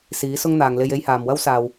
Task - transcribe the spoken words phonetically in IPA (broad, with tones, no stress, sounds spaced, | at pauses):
s iː˨˥ s ʊ˥ ŋ n̪ aː˨ ŋ l e˧ j e˥ j h aː˨ m w ɐ˥ w s aː˨ w